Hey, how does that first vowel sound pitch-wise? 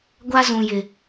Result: high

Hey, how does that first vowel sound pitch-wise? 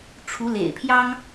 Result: rising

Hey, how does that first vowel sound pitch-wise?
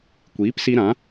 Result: rising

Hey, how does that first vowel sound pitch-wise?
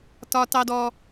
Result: low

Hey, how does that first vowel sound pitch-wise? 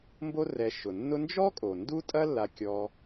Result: high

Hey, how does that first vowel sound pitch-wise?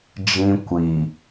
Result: high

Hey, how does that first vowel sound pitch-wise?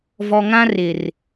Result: low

